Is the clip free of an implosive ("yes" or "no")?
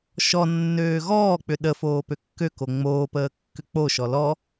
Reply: no